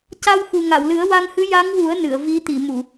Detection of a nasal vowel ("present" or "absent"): absent